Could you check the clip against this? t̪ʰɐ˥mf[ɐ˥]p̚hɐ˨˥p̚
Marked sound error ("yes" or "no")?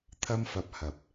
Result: yes